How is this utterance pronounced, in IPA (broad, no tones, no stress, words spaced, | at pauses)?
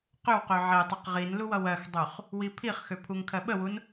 qøwqø ʕetˤʌq ʁin luwʌwɜxdˤøχ | wipʰiχxø pʰuŋkʰɜɓəwun